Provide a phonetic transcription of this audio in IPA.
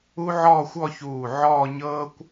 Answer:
u˥ ʕ ɔː˥˧ xʷ ɔ˥˧ ç uː˧˩ ʕ ɔː˥˧ ɲ ɤː˥ kʷ

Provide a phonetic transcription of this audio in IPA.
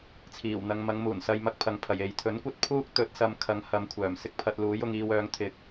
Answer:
t͡sʰ iː˨˩ w n̪ ɐ˨ ŋ m ɐ˨˧ ŋ m uː˨˩ n s ɐ˨ j m ɐ˧ k̚ pʰ ɐ˨ ŋ pʰ ɐ˨˩ j e˨ j t̪ʰ ɵ˨˥ n kʷ ɐ˥ t̚ pʰ uː˥ k̚ t̪ ɵ˨˥ t̚ s ɐ˨˧ m kʰ ɐ˨˥ ŋ h ɐ˨˧ m kʷʰ œː˨˩ m s ɪ˥ k̚ pʰ ɐ˧ t̚ l uː˨˥ j ʊ˨˧ ŋ iː˧ w œː˨˥ ŋ t̪ʰ ɪ˨˥ k̚

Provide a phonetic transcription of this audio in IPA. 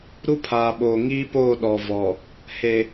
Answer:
ɾ u˦ pʰ aː˨ ɓ oː˨ ŋ iː˦ p oː˦˨ ɗ ɔ˨ v ɔ˨ | h e˨

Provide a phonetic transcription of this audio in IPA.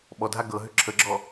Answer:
ɓ ɔ dʱ a ɡ ɤ ɦ ʏ ǁʰ ə ɡ͡ǁ ɔ

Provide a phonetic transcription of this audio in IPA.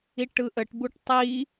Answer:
i ʈ ɯ ʔ ə ʈ b u ʈ tˤ i

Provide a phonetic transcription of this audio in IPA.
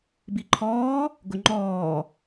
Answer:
b i ǃʰ ɔː | ɡ ʊ ŋ͡ǃ ɔː

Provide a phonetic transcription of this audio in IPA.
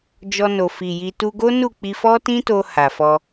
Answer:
d͡ʒ ɔ˧ n o˨ f i˨ j i˧ t u˧ ɡ o˦ n u˦˨ k͡p i˧ f ɔ˦ t ĩ˦ t o˧ h a˨ f ɔ˧

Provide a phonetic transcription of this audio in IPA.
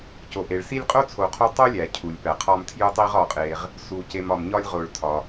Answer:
c o˩ ʔ e˩ ɭ s i˦ lʲ qʼ o˥ t͡sʰ o˨ qʰ o˦ tˤ o˥ lʲ æ˩ cʰ u˩ lʲ p æ˩ qʰ ɒ˦ m tʰ j u˥ tˤ i˥ ʁ ɒ˨ qʼ e˨ ʁ | s u˨ c e˨ m ɒ˩ m ɲ ɒ˦ lʲ ʁ o˨ ɭ tʰ ɒ˩

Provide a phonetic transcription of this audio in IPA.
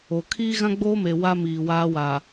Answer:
o˨ kʰ iː˦ ɣ ã˦ ɡ͡b oː˦ m e˨ w a˦ m iː˨ w aː˦ w a˨

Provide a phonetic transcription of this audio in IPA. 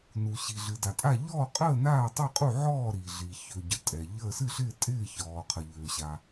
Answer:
n u˩ ɕ i˩ ɮ ɨ˩ d a˩ tʼ a˥˩ ʎ ɔː˥˩ qʼ əː˥˩ n aː˥˩ tˤ ɨ˥˩ qʼ u˥˩ ʕ ɔː˥˩ ɾ i˩ ɮ i˩ ç ø˩ ɟ ə˩ tʼ ɛ˩ ʎ əː˥˩ s ɨ˥˩ ɬ ɪː˥˩ tʼ ɪː˥˩ ç ɔː˩ qʰ ə˩ ʎ øː˩ ɕ a˩

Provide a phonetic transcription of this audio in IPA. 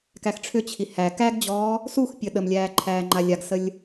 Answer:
k æ x ʈ͡ʂʰ ʏ t͡ɕʰ i h æ k æ ɡ d͡ʑ ɔː | s u x pʲ ə ɗ ə m lʲ æː ǃʰ æː ŋ͡ǃ a lʲ a ɡ s ə lʲ

